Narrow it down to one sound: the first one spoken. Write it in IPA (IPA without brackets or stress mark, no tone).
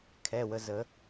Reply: kʰ